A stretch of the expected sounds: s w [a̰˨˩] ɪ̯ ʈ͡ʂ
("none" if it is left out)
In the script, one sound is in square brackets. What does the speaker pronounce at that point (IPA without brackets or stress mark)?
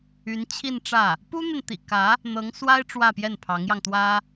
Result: a˥